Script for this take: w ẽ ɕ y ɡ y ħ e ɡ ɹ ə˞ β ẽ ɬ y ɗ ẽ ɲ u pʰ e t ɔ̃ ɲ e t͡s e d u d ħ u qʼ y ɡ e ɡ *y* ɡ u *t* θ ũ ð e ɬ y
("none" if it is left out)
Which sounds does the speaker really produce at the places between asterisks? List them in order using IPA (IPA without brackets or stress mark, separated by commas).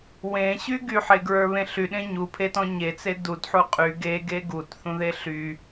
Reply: e, t